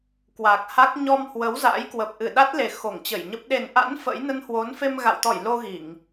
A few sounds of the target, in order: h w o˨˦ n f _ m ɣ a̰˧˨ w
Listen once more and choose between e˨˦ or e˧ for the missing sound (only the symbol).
e˧